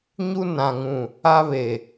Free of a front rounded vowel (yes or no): yes